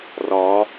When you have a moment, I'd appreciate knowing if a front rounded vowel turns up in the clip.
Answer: no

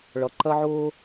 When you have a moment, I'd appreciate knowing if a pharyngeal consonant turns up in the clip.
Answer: yes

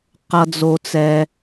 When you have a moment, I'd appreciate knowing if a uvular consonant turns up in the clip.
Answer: yes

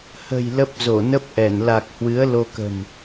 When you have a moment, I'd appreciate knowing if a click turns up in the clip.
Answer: no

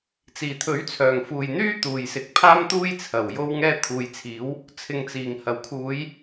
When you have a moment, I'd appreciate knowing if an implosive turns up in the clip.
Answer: no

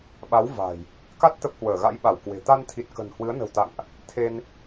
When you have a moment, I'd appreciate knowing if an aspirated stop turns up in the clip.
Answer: yes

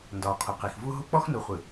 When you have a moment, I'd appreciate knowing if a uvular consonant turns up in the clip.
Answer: yes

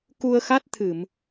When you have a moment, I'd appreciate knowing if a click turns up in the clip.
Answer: no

